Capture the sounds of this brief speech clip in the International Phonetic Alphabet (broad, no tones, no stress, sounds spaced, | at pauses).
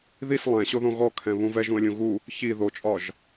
ð i s lˠ ɛ̃ ɕ o ð õ ɣ ɔ kʰ ɛ̃ β ũ v ɛ ʒ ũ ə̯ lʲ ũ ɣ u | ç i ð o t͡ʃʼ ɒ ʒ